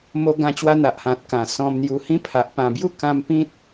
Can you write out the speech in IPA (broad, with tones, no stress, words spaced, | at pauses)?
mo˧ɡã˧ t͡ɕwa˧n̪a˨ʔhã˨t̚kã˨˩ sɔ̃˧mn̪ju˧hĩ˦pʰa˨ʔ pã˨˩bju˥˧kã˧m pĩ˦t̚